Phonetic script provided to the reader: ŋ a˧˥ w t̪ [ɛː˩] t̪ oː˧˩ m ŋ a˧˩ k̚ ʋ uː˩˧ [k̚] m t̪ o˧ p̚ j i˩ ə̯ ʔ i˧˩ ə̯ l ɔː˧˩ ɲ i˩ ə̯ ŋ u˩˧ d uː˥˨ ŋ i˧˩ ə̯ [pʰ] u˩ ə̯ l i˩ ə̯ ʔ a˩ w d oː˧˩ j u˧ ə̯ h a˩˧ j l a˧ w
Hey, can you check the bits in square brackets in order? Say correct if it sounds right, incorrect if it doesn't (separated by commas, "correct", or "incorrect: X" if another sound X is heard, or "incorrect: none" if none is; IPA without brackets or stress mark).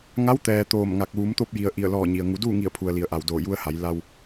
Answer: correct, incorrect: none, correct